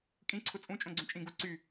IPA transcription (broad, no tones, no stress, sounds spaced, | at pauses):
kʼ ĩ ǀʰ ʊ t͡sʼ ũ t͡ʃʼ õ ɡ͡ǀ ũ t͡ʃʼ ĩ ɡ u ǀ y